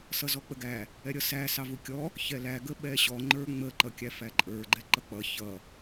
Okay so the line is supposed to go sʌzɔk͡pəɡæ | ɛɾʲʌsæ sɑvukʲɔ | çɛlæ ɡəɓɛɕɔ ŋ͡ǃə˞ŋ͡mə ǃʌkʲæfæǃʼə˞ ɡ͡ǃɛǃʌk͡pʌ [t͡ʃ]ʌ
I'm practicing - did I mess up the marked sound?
yes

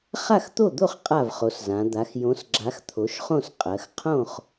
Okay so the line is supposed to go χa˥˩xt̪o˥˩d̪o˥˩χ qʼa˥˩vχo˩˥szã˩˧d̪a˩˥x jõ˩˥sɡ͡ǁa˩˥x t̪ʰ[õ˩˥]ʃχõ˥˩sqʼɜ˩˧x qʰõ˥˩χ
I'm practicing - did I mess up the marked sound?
yes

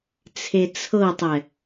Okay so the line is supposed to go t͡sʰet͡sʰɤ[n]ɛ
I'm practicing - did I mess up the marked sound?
yes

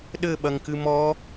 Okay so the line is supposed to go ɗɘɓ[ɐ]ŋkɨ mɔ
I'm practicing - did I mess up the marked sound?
no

